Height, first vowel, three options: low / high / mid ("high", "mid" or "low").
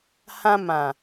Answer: low